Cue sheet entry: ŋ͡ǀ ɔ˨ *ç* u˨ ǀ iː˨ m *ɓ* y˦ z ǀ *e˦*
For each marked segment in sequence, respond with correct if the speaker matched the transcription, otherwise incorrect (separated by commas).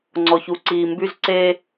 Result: correct, incorrect, correct